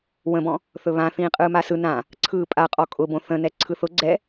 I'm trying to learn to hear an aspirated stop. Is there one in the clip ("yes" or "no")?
yes